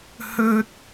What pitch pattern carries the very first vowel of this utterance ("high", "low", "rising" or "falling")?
high